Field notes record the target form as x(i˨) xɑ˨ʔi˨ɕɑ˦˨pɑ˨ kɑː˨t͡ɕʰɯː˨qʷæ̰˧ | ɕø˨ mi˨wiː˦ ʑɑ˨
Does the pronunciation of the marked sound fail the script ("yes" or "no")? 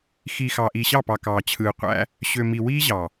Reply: no